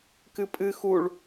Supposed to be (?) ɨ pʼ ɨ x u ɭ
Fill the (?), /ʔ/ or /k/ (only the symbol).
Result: k